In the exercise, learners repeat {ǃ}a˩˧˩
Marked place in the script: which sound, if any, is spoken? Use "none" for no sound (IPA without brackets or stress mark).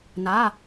n